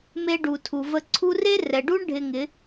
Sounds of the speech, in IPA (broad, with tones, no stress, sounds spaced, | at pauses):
m e˧ ɖ u˨ tʰ u˨ v ə˧ ǀʰ u˦ r e˦ r ɛ˨ ɖ u˦ ɳ ɖʱ ɪ˧ ŋ ɪ˨˦